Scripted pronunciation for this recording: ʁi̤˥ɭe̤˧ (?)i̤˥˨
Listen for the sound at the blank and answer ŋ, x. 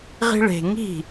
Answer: ŋ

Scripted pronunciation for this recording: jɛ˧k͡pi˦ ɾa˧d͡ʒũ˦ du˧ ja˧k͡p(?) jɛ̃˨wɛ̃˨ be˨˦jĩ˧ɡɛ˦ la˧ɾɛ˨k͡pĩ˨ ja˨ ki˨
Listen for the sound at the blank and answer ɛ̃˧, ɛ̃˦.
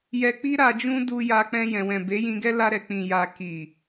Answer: ɛ̃˧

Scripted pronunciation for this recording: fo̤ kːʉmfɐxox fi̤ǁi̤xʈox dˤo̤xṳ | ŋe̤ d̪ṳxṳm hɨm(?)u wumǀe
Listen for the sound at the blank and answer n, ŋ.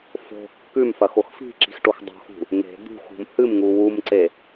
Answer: ŋ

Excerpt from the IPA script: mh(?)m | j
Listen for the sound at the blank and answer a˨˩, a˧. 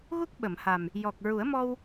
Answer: a˨˩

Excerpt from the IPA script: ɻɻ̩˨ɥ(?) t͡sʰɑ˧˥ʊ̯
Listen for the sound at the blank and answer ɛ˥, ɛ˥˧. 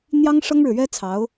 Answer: ɛ˥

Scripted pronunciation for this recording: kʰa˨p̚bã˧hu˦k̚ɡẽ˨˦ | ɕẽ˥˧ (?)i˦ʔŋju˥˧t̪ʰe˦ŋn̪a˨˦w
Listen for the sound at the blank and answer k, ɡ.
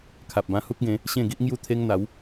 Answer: ɡ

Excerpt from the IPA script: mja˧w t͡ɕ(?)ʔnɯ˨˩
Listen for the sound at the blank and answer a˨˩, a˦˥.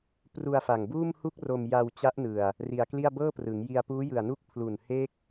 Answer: a˦˥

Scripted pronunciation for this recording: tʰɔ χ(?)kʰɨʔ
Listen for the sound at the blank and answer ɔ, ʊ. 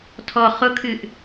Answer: ʊ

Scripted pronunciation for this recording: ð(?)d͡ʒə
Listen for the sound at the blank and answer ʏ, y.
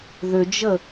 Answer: ʏ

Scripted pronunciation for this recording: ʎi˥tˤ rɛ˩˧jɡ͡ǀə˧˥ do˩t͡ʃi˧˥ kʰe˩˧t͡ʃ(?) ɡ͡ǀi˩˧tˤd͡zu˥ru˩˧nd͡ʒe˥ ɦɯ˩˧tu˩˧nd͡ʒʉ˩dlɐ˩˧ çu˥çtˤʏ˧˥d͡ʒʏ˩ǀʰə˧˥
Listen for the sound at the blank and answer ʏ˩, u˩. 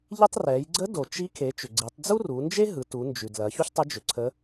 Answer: ʏ˩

